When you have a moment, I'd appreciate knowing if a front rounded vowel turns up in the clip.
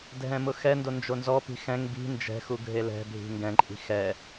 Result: no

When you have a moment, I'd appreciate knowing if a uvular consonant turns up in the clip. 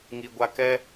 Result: no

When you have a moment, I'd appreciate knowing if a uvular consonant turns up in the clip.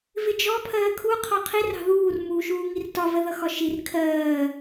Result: yes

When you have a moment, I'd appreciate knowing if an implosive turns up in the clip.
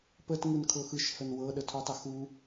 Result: yes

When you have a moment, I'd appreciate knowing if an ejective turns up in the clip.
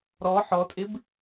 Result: yes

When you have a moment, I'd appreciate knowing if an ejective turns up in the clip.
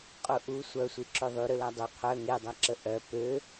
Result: yes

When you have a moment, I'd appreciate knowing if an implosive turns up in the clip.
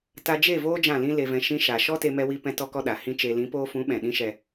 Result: yes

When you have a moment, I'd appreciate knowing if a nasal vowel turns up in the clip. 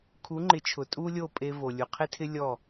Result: no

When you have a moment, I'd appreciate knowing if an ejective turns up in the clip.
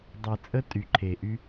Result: yes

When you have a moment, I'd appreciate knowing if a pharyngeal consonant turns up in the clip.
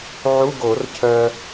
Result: yes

